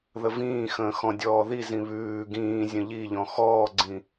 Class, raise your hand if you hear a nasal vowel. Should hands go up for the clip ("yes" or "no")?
yes